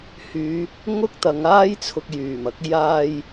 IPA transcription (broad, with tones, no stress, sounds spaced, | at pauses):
h yː˨˧ | ŋ ʊ˥ k̚ t̪ ɐ˨˧ ŋ aː˥ j t͡sʰ ʊ˧ k̚ j yː˨˩ m ɐ˨˥ k̚ j aː˧ j